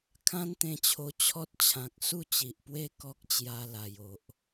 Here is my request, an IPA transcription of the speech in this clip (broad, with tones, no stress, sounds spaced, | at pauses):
kʰ ã˦ n t̪ ẽ˧ t͡ɕʰ o˧ t͡ɕʰ ɔ˦ t̚ t͡ɕʰ ã˨ k̚ s u˥˧ t͡ɕ i˨ ʔ p w e˦ k ɔ˦ k̚ t͡ɕ j a˧ l a˨˩ j o˨ ʔ